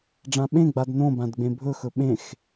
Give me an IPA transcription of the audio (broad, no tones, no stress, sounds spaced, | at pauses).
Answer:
ɖ͡ʐ ã ɓ ẽ ɡ͡b a d n õ b ã d ɡ͡b ẽ bʱ ɵ x ɵ ɓ ẽ x